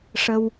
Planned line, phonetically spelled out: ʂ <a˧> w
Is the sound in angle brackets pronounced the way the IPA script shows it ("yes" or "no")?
no